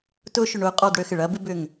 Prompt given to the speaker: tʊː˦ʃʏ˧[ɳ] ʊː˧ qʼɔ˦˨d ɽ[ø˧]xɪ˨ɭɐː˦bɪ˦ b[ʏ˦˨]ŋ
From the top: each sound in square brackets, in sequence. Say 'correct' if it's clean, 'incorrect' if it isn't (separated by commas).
correct, correct, correct